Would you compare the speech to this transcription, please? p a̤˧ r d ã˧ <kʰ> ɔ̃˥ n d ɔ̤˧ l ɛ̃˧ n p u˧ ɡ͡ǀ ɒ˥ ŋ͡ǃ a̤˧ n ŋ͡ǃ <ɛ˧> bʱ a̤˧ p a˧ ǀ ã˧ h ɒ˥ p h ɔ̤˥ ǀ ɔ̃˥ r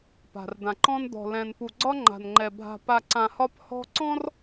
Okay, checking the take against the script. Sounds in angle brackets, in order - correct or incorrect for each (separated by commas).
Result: incorrect, correct